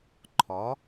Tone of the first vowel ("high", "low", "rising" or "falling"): rising